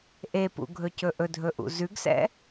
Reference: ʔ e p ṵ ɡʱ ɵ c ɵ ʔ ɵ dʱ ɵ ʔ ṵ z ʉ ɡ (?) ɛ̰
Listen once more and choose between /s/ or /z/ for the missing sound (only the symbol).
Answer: s